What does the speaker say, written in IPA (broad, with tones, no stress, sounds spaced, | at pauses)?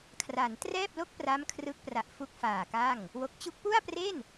kʰ r a˩˦ n t r ɛː˥˩ p̚ l o˥˩ k̚ p r a˦˥ m kʰ r ɯ˦˥ k̚ p r a˨˩ ʔ f u˦˥ k̚ f aː˨˩ k a˥˩ ŋ | w o˨˩ k̚ t͡ɕ u˦˥ k̚ p u˥˩ a̯ p r e˥˩ n